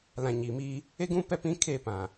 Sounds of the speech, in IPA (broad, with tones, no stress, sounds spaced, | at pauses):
l ã˨ ɲ iː˨ m iː˦ | e˦ ɡ ũ˦ p ɛ˦ p ĩ˦ kʰ eː˦˨ p ã˨